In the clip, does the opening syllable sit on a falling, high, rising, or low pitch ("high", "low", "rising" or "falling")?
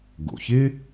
low